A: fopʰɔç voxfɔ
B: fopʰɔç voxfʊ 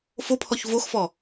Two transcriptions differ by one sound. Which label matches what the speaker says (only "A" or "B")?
A